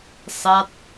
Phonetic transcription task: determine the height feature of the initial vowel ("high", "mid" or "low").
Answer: low